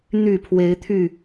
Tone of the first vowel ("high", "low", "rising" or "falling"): low